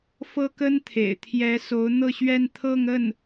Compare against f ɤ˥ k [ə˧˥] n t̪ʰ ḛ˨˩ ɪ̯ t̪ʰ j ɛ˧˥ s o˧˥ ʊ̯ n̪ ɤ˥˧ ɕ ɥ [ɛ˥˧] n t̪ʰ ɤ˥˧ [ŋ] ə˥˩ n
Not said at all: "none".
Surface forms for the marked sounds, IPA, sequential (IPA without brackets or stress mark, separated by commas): ə˥, ɛ˥˧, ŋ